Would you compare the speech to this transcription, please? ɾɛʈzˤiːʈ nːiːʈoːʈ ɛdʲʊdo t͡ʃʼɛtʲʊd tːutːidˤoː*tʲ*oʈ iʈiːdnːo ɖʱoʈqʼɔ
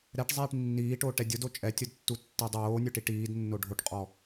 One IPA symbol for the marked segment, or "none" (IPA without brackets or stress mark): nʲ